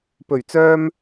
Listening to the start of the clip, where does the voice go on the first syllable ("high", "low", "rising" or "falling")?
low